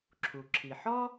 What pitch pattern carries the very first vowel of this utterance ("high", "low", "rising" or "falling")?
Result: low